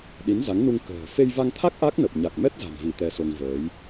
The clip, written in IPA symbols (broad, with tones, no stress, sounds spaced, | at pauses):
ɗ i˨˦ n z a˨˦ ŋ n u˧ ŋ k ə̤ː˨˩ f e˧ j v a˧ ŋ t̪ʰ a˦˥ k̚ ʔ a˦˥ k̚ n ə˨˩ p̚ ɲ a˨˩ k̚ m ɛ˦˥ t̚ z a̤˨˩ m v i˧˩ t̪ ɛ˧ s o˧ ŋ v əː˨˦ j